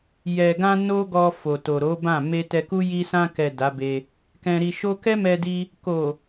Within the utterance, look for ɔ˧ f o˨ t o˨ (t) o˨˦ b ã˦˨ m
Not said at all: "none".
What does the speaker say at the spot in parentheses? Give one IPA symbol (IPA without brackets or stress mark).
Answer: ɾ